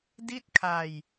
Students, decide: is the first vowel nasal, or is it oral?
oral